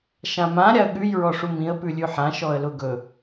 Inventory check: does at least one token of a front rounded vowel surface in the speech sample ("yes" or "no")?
no